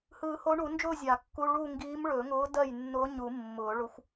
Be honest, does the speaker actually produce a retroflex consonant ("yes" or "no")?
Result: yes